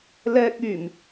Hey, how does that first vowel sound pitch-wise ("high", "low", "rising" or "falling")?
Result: high